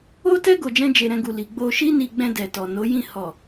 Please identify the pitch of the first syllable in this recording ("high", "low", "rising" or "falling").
high